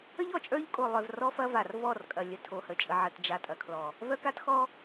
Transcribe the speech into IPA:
ə˦ ʎ ɔ˨ t͡ʃʼ ə˞˦ ʎ kʼ o˨ lˠ œ˨ v r ɔ˦ f ɐ˦ v a˨ r v ɔ˦˨ r kʼ ɐ˨ lʲ ə˨ tʰ o˨ h ə˨ t͡ʃʼ ə˨ ʕ ə˨ t d͡ʒ a˨ tʼ ɐ˨ kʰ l ɔ˨ | v œ˦ k a˦ t x ɔ˦

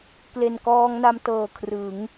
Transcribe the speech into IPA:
k l e˨˩ n k ɔː˧ ŋ n a˧ m t ɤː˨˩ kʰ r ɯ˩˦ ŋ

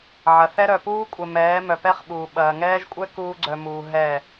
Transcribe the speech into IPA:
ʕ ɐ˨ θ ɛ˦ ɾ œ˨ p uː˦ kʷʼ ɛ˨ m ɛː˨˦ m œ˨ p ɛ˦ χ ɓ uː˨ ɓ ɐː˨ ŋ ɛː˦ ʒ kʷʼ ɛ˦ k uː˦ ɡ͡ǀ œ˨ m uː˨ ɦ ɛ˦˨

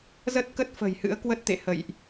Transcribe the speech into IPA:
z ə˦˥ t̚ k ə˦˥ t̚ f ə̤˨˩ j h ɨ̰˧˥ ə̯ k w ə˦˥ t̚ t̪ ḛ˧˨ h ə̰˧˨ j ʔ

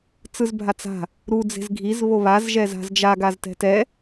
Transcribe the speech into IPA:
t͡s ɯ z bʱ a t͡s a̤ | ɾ u d͡z e̤ z ɡʱ i z β o β a z ʒ ɛ z a̤ z d͡ʒ a ɡ a z t ɛ̤ t ɛ

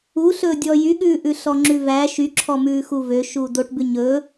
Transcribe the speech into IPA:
u ɬ ɵː dʲ ɔ j y ɠ ʉː ʔ ʉ ɬ ɔ ŋ͡ǁ ʉ v æ ʃ y ǁʰ ɔ m ʉː x u v ø ʃ uː d o ʈ b ʉ ɲ ɵː

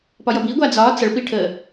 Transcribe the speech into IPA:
p ɒ j ʌ b i ɡʷ a d͡z ɒ t͡s ʌ ɭ p i ʈʰ ə

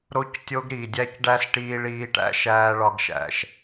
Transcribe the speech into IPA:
ɾ o˦ c tʲ o˦ ɡ ɾ i˨ dʲ æ˦ c ɖ æ˦ s ʈ iː˧ ɭ iː˧ ʈ æ̰˧ ʃ æː˧ ɭ ɒ˧ ɡ ʃ æ̰˨ ʃ

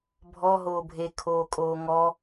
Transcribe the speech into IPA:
bʱ ɔ ɦ oː bʱ e kʰ oː kʼ oː ŋ ɔ

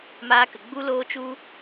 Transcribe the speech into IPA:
m aː˧ k ə˨ ɡ͡b u˦ l oː˦ t͡ʃ u˦

